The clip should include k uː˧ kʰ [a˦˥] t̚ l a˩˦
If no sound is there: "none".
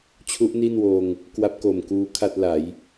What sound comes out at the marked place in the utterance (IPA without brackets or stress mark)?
a˥˩